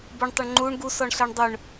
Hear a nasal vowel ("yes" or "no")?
no